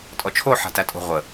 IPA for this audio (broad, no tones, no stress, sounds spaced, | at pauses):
tʼ ɔ t͡ʃʰ o ħ a̤ t æ tʼ o̤ ʁʷ ə